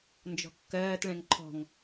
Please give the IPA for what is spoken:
n d͡ʒ ɔ̤ kː ɜː t ɭ ɛ̃ ŋ ǃʰ ɔ̤ ŋ

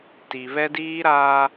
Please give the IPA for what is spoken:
t i˨ β ɛ˦ d iː˦ ɾ aː˦

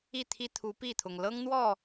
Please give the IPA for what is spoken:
i˥˨ t̪ʰ i˦ t̪ʰ u˨˦ p i˥˨ t̪ʰ ʊ˩ ŋ l ɤ˦ ŋ n̪ w ɔ˥˨

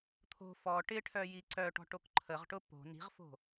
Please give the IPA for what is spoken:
t̪ʰ o̤ f ɔ ʈ ɪ ʈʰ œ j i ǀ œ ʈ ɔ̤ ʈ o k ǃʰ ə ʁ ʈ ʊ p o̤ n i̤ ʁ f o̤

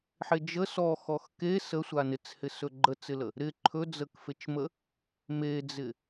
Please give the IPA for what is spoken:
ħ e d͡ʒ ə s ɔ x ɔ x k e s ə sʷ a n ɪ t͡s h ɪ s ɵ ɡ͡ǃ ə t͡s ɪ l ə | ɾ ɪ ǃʰ ɵ d͡z ə k f e t͡ʃ m ə | m e d͡z ɪ

